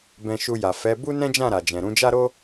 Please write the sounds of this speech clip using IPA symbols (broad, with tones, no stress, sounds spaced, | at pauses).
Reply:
b ɛ̃˧ ʃ u˧ j a˨ f ɛ˨˦ b u˦ n ɛ̃˦ d͡ʒ ã˦˨ ɾ a˨ d͡ʒ ɛ̃˨ ɾ ũ˧ d͡ʒ a˦ ɾ o˦